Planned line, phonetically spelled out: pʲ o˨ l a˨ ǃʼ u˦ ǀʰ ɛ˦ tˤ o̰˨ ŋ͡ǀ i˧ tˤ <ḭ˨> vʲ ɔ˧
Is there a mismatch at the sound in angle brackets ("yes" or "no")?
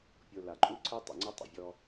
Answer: no